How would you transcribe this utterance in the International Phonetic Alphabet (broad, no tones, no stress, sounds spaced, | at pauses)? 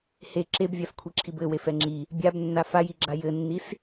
h e ǁ e b vʲ a f kʷʰ i ǁʰ i b ɘ w e f ɛ ŋ͡ǁ i | bʲ a b nː a f a j i ɡ͡ǁ a j ɘ nː i s